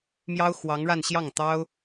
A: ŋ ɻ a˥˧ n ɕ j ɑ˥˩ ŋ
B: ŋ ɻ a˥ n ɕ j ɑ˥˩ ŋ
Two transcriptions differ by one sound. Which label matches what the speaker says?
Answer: A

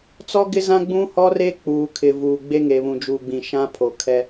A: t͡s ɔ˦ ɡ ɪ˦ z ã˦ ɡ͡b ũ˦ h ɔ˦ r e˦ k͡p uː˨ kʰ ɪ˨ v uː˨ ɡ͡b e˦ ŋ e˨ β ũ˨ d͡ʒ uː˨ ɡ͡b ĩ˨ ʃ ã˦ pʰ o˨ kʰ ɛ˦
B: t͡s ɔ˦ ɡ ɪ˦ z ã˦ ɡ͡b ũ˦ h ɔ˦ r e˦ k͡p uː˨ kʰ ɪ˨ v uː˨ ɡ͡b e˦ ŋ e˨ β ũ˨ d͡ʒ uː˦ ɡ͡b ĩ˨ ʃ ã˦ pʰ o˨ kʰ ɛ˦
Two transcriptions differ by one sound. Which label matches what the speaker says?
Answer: A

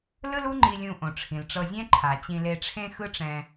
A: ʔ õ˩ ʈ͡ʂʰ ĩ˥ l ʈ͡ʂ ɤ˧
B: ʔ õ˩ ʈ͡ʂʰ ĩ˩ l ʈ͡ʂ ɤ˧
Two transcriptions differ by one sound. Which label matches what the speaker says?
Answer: B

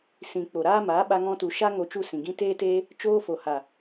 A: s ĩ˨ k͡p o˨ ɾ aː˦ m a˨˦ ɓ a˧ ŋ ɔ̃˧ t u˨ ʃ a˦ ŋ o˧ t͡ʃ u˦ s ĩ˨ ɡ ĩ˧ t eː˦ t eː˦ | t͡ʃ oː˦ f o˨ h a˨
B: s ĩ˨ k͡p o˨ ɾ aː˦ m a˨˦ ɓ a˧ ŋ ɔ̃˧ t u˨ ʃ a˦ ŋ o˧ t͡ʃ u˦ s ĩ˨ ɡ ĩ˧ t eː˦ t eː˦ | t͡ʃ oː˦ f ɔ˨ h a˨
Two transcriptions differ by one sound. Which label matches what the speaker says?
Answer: A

